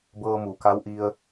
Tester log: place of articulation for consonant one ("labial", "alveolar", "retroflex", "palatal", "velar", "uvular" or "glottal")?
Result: labial